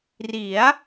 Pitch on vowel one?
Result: rising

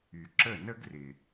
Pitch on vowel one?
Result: low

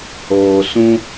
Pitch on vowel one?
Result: low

